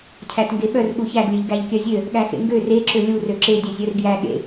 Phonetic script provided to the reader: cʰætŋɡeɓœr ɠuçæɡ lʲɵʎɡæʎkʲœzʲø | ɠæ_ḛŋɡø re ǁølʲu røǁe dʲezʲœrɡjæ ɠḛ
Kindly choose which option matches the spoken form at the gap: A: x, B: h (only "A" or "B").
A